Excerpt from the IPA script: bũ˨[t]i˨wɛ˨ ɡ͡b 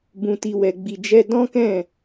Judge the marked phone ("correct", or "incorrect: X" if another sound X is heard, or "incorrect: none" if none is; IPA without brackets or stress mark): correct